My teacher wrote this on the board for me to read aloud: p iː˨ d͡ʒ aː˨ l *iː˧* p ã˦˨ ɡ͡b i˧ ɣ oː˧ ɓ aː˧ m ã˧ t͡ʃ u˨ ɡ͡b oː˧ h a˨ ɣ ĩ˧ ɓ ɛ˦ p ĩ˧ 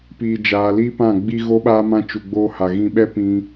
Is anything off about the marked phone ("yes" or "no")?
yes